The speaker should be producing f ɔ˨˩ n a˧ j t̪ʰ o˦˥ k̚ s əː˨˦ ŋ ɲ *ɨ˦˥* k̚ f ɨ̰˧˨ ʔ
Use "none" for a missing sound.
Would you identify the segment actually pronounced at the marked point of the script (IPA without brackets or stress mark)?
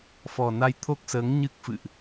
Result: ɨ˦˥